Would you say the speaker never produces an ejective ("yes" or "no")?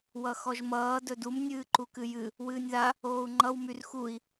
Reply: yes